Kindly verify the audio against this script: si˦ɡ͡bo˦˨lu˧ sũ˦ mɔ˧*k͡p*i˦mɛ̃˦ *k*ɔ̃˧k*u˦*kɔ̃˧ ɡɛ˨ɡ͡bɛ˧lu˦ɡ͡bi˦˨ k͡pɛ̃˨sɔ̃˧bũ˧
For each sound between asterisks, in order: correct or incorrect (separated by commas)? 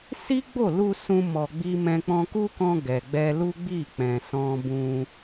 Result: incorrect, incorrect, correct